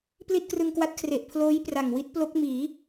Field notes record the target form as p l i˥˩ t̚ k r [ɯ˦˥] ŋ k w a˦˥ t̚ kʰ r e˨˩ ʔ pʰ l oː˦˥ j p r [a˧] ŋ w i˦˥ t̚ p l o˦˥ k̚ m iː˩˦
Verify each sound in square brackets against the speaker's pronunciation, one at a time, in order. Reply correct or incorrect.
incorrect: ɯ˧, incorrect: a˨˩

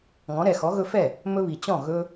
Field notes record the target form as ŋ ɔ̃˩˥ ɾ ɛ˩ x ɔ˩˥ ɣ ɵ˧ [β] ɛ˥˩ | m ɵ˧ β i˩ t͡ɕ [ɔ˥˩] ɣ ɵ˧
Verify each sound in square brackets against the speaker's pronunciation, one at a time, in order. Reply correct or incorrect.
incorrect: f, incorrect: ɔ̃˥˩

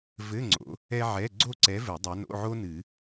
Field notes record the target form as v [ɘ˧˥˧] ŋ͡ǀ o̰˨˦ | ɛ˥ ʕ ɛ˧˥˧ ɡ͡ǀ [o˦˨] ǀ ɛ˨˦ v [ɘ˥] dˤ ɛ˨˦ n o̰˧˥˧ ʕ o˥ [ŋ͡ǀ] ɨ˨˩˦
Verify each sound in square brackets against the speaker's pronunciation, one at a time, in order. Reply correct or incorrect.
correct, correct, incorrect: ɘ˨˩˦, incorrect: n

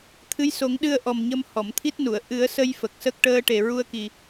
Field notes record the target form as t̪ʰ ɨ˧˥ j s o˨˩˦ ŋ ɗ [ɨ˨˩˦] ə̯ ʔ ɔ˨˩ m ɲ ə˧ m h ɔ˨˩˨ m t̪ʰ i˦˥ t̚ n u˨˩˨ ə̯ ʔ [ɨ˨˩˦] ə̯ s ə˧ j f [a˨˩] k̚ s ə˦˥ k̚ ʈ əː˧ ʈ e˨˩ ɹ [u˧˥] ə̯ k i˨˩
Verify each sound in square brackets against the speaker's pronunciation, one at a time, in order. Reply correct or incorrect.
incorrect: ɨ˧, correct, incorrect: ə˨˩, incorrect: u˧

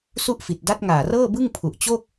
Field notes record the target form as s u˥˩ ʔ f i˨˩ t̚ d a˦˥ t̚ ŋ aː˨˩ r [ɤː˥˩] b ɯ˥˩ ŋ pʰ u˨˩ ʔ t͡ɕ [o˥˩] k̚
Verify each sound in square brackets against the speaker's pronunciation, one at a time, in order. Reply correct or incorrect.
correct, correct

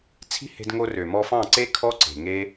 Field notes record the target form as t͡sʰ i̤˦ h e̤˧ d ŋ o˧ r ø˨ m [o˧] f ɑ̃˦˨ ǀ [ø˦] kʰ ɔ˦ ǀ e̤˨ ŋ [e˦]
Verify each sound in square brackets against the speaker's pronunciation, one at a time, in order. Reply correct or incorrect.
incorrect: ɔ˧, incorrect: e˦, correct

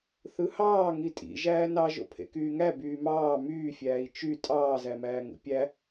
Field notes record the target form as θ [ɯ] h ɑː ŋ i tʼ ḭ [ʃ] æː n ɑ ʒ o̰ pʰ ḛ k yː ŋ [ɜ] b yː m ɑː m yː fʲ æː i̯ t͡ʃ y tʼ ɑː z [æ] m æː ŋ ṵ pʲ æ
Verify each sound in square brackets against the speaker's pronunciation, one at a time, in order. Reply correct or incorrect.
correct, incorrect: ʒ, incorrect: æ, correct

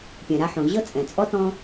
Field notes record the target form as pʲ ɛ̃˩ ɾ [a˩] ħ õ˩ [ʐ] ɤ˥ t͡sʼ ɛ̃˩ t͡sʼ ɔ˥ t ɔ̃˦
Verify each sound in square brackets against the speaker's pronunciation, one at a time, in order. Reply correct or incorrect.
incorrect: a˦, incorrect: ʑ

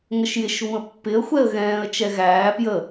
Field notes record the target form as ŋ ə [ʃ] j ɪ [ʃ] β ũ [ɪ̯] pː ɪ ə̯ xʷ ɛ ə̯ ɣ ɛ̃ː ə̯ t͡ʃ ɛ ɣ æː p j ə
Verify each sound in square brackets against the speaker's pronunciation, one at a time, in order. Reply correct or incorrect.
correct, correct, incorrect: ə̯

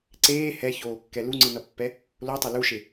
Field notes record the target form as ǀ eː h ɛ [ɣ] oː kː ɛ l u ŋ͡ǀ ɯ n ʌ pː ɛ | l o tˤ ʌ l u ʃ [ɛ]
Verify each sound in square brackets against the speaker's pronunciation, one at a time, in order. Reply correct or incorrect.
incorrect: ç, incorrect: e

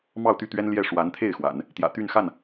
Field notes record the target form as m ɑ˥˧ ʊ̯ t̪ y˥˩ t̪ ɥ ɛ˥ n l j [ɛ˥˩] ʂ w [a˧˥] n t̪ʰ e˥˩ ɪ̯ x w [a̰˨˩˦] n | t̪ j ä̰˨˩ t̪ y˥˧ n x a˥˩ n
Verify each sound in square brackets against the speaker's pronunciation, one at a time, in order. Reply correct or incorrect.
correct, correct, correct

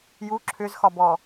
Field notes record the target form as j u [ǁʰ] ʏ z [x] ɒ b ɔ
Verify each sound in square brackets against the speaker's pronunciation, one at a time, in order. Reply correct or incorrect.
correct, correct

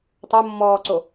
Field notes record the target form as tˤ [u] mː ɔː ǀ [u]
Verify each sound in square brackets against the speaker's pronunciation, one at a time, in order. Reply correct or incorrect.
incorrect: o, incorrect: o

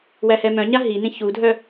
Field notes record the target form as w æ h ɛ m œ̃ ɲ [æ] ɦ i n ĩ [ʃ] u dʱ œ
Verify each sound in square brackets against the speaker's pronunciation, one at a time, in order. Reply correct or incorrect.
incorrect: a, incorrect: ç

